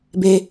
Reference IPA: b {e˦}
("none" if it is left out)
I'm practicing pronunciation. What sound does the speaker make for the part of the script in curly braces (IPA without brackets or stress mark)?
e˦